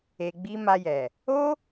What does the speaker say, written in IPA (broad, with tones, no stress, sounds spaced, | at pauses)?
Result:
e˨ ɡ͡b i˧ m a˧ j ɛ˨ | o˦